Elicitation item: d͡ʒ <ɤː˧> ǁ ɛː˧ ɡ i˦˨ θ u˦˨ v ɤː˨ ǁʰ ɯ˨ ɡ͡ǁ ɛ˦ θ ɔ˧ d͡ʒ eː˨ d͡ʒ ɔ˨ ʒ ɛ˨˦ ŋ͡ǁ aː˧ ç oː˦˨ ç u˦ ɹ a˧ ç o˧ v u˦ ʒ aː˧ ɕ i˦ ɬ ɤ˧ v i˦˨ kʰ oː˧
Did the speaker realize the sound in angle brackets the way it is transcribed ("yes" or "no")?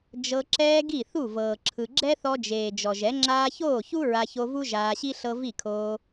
no